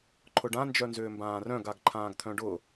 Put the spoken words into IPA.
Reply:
ǃʰ ʊ ɖ ã n d͡ʒ œ n z ʏː m b ãː r œ̃ ɡ a ɡ ǃʰ ãː ɡ t̪ʰ œ̃ ɖ ʊ

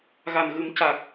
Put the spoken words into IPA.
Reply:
ɣ a˨˩ n ɣ ɨ˨˩˦ m c a˨˩ k̚

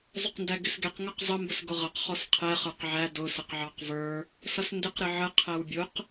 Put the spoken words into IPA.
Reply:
zˤ ʊ q n d æ ɡ ɪ s ɡ ɛ q ŋ ʌ q zˤ ə m b ə s ɡ ʊ ʁ ʌ q χ ɔ s qʰ ɛ χ ə˞ q ʕ æ d ʊ s ə q ʕ ɑ q v ə˞ | s ʌ s n d ɪ q ɾ ɪ ʕ ə qʰ æ w bʲ ʊ q

